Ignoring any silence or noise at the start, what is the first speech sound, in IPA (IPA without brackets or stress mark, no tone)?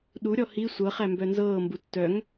ɗ